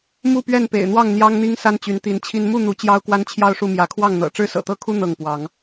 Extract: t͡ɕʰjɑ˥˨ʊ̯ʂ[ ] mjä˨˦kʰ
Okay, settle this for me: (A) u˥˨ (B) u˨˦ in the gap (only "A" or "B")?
A